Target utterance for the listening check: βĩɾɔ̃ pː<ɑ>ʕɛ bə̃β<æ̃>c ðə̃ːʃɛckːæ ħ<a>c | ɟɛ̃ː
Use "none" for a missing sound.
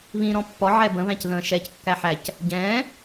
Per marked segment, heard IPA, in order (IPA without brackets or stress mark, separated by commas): ɔ, æ̃, æ